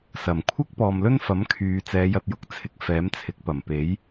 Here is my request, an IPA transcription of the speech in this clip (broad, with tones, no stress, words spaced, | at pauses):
sɐ˨˩m kʷʰɪ˥k̚pɔː˨mlɵ˥nfɐ˨˥m kʰyː˨˧ t͡sɛː˨˧jɐ˨t̚jʊ˨˥k̚t͡sʰɪ˨˥k̚ fɛː˨˥mt͡sʰɪ˨˥k̚pɐ˨˩mpe˨˥j